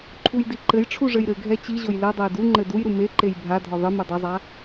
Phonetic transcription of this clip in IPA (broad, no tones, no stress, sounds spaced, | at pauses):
ǃʰ u j d i ǃ ɘ j ʈ͡ʂʰ u ʐ ɘ j ɾ ɘ ɡʱ ɛ t͡ɕ i ʑ o j l ɛ dˤ ɛ j d u ŋ͡ǃ ɘ d u j ɾ u m e ǃ e j bʱ a dʱ ɔ ðˤ ɨ m ɨ dˤ ɐ zˤ a